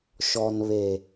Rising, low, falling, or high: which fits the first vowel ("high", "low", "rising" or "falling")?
low